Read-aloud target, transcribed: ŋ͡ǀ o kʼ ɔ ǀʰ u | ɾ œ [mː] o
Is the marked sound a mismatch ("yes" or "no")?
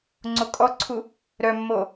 no